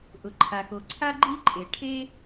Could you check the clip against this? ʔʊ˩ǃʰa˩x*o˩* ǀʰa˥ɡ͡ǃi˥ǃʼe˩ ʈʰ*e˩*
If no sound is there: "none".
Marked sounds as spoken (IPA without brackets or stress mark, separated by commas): o˩, e˥